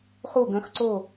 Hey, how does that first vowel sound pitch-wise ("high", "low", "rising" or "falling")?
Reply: falling